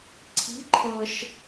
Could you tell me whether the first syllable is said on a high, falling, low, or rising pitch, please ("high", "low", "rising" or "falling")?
rising